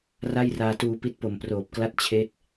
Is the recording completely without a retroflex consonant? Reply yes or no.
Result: yes